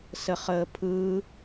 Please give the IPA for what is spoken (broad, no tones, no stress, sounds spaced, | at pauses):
s ə χ əː pʰ ɯː